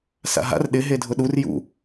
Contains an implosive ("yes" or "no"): yes